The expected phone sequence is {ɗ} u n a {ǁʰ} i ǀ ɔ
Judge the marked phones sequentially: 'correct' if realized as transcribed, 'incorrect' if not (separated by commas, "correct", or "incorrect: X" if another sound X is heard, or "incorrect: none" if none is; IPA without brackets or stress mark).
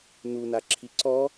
incorrect: n, correct